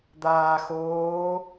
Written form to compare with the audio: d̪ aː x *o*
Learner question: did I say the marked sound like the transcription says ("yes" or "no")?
no